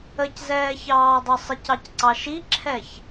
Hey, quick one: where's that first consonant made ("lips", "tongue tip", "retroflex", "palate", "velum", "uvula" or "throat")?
palate